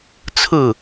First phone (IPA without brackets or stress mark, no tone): t͡sʰ